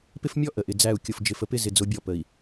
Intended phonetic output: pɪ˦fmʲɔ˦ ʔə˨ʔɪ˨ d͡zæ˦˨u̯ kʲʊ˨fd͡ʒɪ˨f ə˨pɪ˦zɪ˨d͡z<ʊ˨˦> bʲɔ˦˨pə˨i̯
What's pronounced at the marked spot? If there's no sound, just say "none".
ʊ˨˦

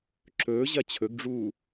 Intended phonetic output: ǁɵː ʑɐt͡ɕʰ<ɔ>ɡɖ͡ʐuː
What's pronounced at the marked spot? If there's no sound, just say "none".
ɵ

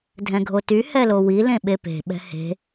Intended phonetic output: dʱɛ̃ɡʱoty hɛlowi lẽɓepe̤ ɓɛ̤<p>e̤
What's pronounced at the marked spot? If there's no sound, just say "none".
h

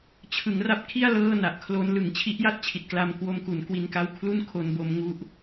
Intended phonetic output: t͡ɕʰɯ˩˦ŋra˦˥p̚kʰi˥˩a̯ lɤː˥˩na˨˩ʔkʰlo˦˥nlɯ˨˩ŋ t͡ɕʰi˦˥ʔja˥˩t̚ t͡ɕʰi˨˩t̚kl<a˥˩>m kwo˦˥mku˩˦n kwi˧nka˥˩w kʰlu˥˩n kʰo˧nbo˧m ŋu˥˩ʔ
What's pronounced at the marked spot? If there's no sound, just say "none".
a˧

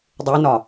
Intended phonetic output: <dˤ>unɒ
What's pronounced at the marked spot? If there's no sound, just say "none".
dˤ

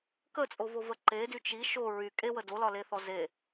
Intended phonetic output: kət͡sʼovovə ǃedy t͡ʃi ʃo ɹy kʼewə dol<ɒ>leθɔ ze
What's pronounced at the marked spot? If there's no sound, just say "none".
ɒ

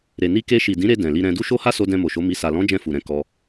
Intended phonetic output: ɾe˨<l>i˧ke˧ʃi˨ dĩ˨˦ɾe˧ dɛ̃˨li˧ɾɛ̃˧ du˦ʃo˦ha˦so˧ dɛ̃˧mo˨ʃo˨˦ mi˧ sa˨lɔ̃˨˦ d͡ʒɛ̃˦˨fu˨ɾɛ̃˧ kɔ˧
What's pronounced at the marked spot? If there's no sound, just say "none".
n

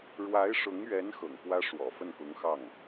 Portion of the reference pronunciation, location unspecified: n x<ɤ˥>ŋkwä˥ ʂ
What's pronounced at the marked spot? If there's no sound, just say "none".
ɤ̰˨˩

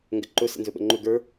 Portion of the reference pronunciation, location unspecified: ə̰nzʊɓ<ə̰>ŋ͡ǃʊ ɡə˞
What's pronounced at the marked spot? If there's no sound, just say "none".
ə̰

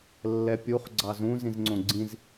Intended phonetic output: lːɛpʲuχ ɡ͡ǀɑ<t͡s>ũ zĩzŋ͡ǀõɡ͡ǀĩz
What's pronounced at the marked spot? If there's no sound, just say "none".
z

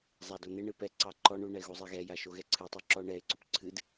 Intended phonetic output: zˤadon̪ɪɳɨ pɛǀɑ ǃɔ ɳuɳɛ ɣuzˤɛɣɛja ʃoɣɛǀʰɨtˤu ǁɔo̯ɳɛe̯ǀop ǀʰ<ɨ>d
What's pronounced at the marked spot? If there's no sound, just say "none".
ɨ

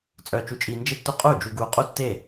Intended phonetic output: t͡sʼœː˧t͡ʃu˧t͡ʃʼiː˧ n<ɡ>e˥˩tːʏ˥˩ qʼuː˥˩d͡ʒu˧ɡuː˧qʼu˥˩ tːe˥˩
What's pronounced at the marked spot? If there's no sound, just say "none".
d͡ʒ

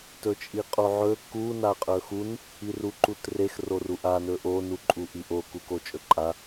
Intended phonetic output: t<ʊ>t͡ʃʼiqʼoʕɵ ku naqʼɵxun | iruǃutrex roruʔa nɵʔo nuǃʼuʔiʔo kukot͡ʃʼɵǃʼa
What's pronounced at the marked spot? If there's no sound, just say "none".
ɵ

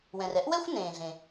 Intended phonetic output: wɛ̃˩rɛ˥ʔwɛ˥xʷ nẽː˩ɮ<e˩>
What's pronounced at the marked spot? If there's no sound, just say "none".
ẽ˩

